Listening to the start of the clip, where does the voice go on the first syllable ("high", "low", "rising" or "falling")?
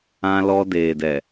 high